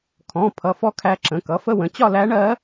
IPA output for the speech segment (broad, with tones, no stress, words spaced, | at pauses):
kʰɔ̃˩˧˩ pʰʌ˩˧˩fɔ˧˥ kʰæ˧˥ǁə̃˩˧˩ kʌ˩˧˩fə˥˧wə̃˩˧˩ t͡ɕɒ˥˧ læ˧˥ɳɜ˧˥